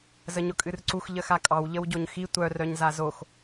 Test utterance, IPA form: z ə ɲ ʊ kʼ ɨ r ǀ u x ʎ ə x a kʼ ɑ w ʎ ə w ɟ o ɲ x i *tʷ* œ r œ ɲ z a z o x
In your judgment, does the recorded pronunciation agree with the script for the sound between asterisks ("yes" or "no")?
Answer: yes